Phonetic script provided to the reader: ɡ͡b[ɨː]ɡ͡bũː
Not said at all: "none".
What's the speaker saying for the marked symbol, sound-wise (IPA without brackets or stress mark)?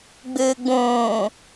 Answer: ɨː